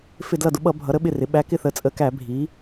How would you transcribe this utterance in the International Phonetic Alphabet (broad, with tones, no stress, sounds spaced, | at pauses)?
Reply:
f ɪ˧˩˧ d l ʌ˧˩ d ʊ˩˧ ɓ ʌ˧˩˧ bʱ ʌ˩˧ ɾ ə˩˧ ɓ ɪ˧˩ r ɪ˩˧ ɓ æ˩˧ k ɪ˧˩ θ ə˧˩˧ t͡sʼ ə˧˩˧ k æ˧˩˧ bʱ i˩˧